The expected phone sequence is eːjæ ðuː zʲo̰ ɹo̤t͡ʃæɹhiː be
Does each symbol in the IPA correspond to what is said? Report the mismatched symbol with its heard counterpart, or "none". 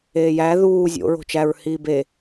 none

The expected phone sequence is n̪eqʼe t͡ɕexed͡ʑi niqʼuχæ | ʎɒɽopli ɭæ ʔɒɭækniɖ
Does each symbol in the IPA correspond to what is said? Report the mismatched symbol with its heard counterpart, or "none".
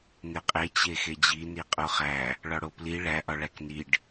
ʎ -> ɭ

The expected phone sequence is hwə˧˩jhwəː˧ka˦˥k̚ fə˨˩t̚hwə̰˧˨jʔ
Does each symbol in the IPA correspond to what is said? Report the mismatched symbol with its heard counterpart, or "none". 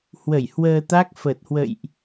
k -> t̪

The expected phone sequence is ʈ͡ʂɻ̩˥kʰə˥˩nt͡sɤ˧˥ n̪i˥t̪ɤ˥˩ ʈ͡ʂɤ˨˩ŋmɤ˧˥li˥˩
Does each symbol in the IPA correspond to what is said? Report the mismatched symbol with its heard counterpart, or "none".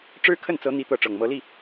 none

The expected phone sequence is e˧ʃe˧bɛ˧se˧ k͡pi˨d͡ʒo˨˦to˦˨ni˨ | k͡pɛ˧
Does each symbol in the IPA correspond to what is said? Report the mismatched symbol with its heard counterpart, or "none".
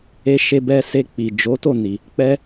none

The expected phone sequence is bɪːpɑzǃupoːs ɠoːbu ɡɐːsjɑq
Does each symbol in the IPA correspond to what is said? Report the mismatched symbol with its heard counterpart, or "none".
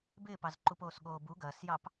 q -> p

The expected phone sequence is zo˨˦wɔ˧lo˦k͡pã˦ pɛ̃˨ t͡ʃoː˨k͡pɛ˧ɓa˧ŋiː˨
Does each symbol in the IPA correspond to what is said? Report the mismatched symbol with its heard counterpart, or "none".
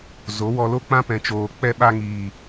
none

